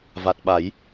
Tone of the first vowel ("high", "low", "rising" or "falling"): low